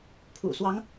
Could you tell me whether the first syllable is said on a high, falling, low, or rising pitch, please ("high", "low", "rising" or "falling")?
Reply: low